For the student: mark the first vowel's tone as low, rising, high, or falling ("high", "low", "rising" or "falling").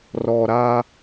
low